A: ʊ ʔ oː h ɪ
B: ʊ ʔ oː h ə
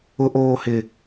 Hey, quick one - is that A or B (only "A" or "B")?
A